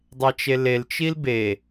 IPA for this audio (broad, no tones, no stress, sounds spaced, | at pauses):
dˤ e t͡ʃ e l e l t͡ʃ i l b e